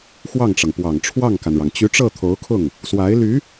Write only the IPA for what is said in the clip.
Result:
x w ɑ˥˩ ŋ ʈ͡ʂ ɤ˩ ŋ p w ɑ˨˩ ŋ ʈ͡ʂʰ w ɑ˥˩ ŋ k a˩ n ɻ ɑ˩ ŋ t͡ɕ y˧˥ ʈ͡ʂ ɤ˥˩ t̪ʰ o˧˥ ʊ̯ kʰ ʊ˥˩ ŋ | s w a˧˥ ɪ̯ l y˧˥

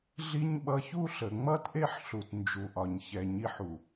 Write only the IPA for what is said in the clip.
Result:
ɮ i˦ ɲ ɓ ʌ˧ ç u˦ ɬ ə˨ ŋ͡m ʌ˦ t ʔ e˦ ħ ɬ u˨ t n d͡ʒ u˨ ʔ ɒ˨ ɲ ç ɛ˨ ɲ i˧ ħ u˨

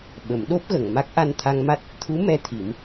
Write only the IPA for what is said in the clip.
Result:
ɓ ə˨˩˦ m ɗ o˦˥ p̚ ɣ ə˨˩˨ ŋ m a˦˥ k̚ ʔ a˧ n t̪ʰ a˧ ŋ m a˦˥ t̚ | t̪ʰ u˧˥ m ɛ˧ t̪ʰ i˨˩˦ m

